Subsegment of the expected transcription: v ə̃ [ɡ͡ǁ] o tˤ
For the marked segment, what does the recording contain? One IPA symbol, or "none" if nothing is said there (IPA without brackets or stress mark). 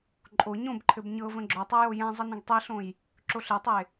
ɡ͡ǁ